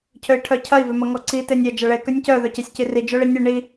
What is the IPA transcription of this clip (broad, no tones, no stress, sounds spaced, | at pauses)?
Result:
cʰ ø i̯ ʈʰ œ cʰ ɐ i̯ v ø m ɐ ŋ ɔ ǀ i t e nʲ ɐ d͡ʒ ɐ ɭ e k ø nʲ c œ ð œ c e sʲ c i r i d͡ʒ œ ɭ i nʲ ɨ ɳ i